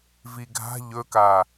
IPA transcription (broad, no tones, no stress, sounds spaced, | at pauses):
v i ɡʱ a̤ ʎ ɵ k a